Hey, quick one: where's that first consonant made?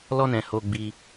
tongue tip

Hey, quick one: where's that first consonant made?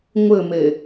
velum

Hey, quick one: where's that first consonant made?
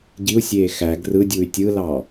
palate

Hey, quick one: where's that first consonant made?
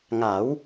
velum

